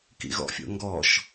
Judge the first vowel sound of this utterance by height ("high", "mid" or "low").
high